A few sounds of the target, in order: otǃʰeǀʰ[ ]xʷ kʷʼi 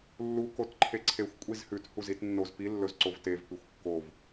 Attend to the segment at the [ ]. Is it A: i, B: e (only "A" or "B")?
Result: B